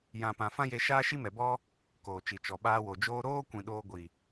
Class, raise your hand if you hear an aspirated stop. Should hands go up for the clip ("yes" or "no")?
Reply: no